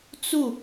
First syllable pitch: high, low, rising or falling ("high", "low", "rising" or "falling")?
falling